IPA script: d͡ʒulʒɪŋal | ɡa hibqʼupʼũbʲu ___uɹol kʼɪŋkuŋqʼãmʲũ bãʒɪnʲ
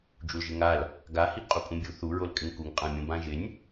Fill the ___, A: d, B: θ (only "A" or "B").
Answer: B